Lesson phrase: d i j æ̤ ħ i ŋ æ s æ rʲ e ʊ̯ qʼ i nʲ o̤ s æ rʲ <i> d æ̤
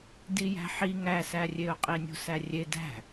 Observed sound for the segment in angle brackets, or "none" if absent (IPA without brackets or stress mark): e